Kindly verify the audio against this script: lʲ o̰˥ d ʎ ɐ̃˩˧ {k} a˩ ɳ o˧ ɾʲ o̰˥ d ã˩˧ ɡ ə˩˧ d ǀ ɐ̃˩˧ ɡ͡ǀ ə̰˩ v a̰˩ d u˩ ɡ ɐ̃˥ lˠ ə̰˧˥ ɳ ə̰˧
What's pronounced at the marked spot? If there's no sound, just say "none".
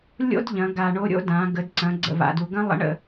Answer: ɡ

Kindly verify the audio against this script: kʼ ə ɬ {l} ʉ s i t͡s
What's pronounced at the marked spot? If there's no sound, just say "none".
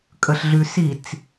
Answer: ɮ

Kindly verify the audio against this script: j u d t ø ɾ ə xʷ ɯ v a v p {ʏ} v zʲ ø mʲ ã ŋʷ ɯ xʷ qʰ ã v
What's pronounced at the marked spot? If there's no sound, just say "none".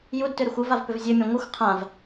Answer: ʏ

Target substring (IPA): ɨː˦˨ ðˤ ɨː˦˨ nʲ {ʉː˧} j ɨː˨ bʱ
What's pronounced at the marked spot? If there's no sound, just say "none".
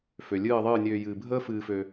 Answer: øː˧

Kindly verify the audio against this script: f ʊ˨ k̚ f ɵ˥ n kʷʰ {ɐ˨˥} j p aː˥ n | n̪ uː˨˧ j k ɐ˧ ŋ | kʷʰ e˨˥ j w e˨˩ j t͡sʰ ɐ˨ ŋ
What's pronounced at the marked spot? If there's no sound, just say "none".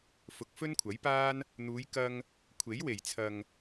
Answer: ɐ˨˥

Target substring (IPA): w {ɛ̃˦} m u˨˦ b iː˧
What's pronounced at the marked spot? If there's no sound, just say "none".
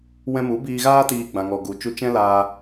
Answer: ɛ̃˧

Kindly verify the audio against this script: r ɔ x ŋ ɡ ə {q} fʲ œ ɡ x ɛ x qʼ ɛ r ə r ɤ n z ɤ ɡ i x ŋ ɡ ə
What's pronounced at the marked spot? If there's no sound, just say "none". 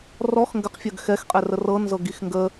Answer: q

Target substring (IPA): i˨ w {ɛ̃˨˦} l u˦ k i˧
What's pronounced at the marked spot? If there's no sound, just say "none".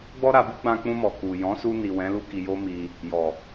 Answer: ɛ̃˨˦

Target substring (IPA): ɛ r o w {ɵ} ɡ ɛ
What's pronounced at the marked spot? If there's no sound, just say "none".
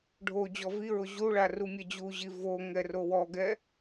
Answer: ɔ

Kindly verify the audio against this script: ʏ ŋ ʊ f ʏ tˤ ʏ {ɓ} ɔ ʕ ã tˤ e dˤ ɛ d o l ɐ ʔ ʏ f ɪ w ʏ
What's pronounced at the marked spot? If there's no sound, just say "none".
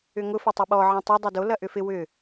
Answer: ɓ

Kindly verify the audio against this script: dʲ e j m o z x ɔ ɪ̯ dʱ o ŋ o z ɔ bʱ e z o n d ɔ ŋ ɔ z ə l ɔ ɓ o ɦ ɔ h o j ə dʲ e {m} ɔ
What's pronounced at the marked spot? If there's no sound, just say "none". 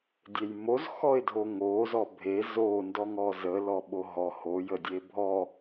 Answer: bʱ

